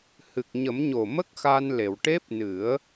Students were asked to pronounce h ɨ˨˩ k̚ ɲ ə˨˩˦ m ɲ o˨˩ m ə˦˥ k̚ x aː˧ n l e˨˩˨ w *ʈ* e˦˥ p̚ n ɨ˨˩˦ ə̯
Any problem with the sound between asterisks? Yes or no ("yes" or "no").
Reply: no